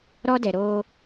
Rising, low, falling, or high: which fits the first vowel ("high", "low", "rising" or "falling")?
high